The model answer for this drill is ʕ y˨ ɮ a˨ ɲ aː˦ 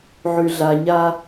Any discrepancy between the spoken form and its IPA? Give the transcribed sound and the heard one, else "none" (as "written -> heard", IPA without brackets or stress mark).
none